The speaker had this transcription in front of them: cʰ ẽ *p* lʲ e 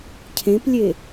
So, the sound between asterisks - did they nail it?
yes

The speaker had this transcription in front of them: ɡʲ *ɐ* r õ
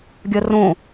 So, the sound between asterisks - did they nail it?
yes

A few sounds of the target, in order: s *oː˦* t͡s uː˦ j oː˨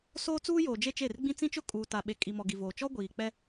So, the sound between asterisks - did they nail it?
yes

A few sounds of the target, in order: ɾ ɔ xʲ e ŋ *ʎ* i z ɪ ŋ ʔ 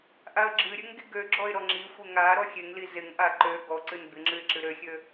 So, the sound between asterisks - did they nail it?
no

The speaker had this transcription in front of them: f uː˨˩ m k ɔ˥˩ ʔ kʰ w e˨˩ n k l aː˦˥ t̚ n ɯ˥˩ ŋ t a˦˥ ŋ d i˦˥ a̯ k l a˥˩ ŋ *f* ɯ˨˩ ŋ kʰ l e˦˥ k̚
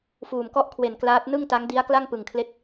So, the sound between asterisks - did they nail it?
no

